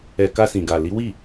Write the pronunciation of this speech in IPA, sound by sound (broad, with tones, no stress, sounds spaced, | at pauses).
ɛ˨ k a˧ s ĩ˨ ɡ a˨ l i˨˦ w i˦˨